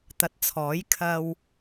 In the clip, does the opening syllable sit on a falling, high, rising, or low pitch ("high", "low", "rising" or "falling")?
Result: low